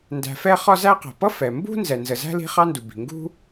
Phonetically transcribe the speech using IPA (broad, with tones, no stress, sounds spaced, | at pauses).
n d æ̤˨ f ɛ˦ χ ɒ˦ z æ˦ q æ̤˩ p ʌ˥ f ɛ˩ m b ṳ˥ n z ɛ˩ n z ə˩ z æ̤˥ l i̤˦ χ ɑ˦ n d u˩ b i̤˩ ŋ ɡ ṳ˥